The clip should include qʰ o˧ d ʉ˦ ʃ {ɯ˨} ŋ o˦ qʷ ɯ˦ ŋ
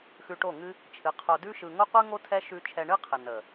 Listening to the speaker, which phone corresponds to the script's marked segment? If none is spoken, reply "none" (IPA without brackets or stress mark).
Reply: ɯ˧